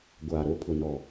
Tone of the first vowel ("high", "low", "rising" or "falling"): low